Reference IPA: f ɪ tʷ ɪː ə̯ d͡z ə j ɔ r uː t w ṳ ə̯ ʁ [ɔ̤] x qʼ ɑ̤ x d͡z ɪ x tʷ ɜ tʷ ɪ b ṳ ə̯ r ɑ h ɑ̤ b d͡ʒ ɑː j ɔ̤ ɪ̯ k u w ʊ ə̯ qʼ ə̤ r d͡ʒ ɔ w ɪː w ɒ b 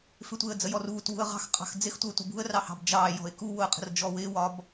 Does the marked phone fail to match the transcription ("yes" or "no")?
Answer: yes